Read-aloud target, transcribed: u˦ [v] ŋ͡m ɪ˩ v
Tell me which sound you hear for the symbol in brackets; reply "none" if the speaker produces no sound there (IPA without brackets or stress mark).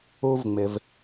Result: v